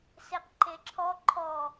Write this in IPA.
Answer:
seqǃeǁʰɔ ǃʰɔ

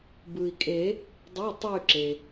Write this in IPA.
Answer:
bɯ˩i̯kʼe˨˩˦ | dˤi˩˧˩ tˤe˦˨y̯ǁe˩

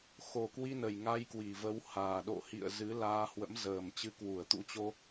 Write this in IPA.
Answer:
xo˨˩kwi˧nə˨˩j ŋa˧jkwi˨˩və˨˦w haː˨˩ ɗo̰˧˨hḭ˧˨ə̯ zɨ˨˦laː˧hwə̰˧˥m zəː˨˩m t͡ɕɨ˨˦kwu˧˩ə̯t̪ṵ˧˥t͡ɕo˧

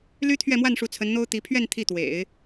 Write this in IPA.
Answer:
ly˥ t̪ʰɥɛ˥˧mwa˥˩nʂu˧˥ t͡sʰə˧˥nn̪o˥ʊ̯ t̪i˧˥ pʰɥɛ˥˧n t̪ʰi˥˩t̪wḛ˨˩˦ɪ̯

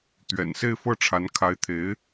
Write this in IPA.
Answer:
t̪ɥɛ̰˨˩nse˥˧ɪ̯fɤ˥˩ʈ͡ʂʰa˧˥n kʰa˧˥ɪ̯t̪ʰe˧˥ɪ̯

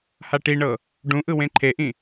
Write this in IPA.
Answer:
haʈiɳɤ | ɖũʔɯ wẽǃʰeʔĩ

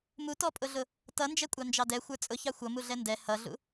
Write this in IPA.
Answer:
mutɔpʼʊɮʊ | tʌnd͡ʒɛkʷʼɑ nd͡ʒɑdɛ xʷə˞t͡sʼʊ çɑxʷʌ muɮɛndɛ hʌɮṵ

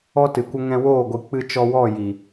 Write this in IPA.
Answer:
ɔ˦tɨ˨kʷə˦ ŋɛ̃˧woː˦˨ɡʷɨ˨ k͡pɨ˧t͡ʃɔ˧wɔ˦˨ ji˨

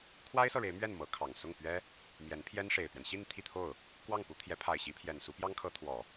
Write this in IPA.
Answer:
kʰwa˥ɪ̯sɤ˨ɻe˧˥ɪ̯ mɥɛ˥˩n mɤ˧˥kʰɑ˨˩ŋ sʊ˥˩ŋpɥɛ˥ | mjɛ˧˥npʰjɛ˥nʂe˨˩ɪ̯pɥɛ˦n ɕi˥˧n t̪ʰi˥˧t̪ʰo˥˩ʊ̯ | kwɑ˥˩ŋpu˧˥t̪ʰjɛ˧˥ pʰa˨˩ɪ̯ ɕi˧˥pʰjɛ˨˩nsu˧˥ pjɑ˥ŋkʰɤ˧˥t̪ʰwɔ˨˩˦

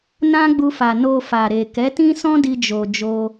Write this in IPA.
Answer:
nã˦ɡ͡bu˧fa˨ no˧fa˨ɾe˨ kɛ˨˦tĩ˦sɔ̃˦ di˦d͡ʒo˧ d͡ʒo˦

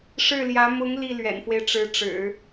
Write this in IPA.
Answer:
ʂɻ̩˥˩ljä˧˥ mʊ˧˥ŋ li˥˩lɥɛ̰˨˩nfwe˦ɪ̯ʈ͡ʂɻ̩˧˥ ʈ͡ʂɻ̩˨˩˦

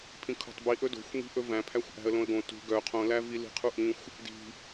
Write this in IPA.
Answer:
pʰĩkʰo̤tˤbi ʔɵdo̤xʷ ŋi̤ʔɵvæ̃pʰæxʷ ʔæ̤ə̯lõə̯ɡõ tṳ ɡœ qʰõlævi li̤qʰuʔĩxʷ | di̤

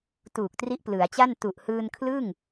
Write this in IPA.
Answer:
tuː˨˩k̚tri˦˥ʔplɯ˩˦a̯t͡ɕa˥˩n tu˨˩ʔhɯː˧nkʰlɯ˥˩ŋ

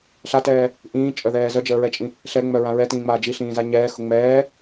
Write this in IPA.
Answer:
ɬatɛː | ʔĩːt͡ʃʼœðɛː zœd͡ʒəːɹɛt͡ʃʼĩ | ɬɛŋ͡mœɹã ɹɛtĩːŋ͡maː d͡ʒiɬĩːza ɲɛːxʊ ŋ͡mɛː

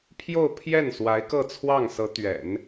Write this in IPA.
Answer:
pʰjo˥˧ʊ̯pʰjɛ˥˩n swa˧˥ɪ̯kɤ˥˧t͡sʰwɑ˥˩ŋsɤ˧˥ t̪ɥɛ̰˨˩˦n

